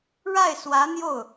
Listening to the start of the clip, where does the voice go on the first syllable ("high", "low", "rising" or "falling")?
falling